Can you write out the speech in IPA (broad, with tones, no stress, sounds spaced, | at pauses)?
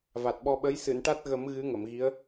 v a˨˩ t̚ ɓ ɔ˧ ɓ ə˧˥ j s ɨ˨˩˨ n ʈ a˦˥ t̚ ɣ ə˨˩˦ m ɣ ɨ˧˥ ŋ ə˨˩˨ m ɣ i˧˥ ə̯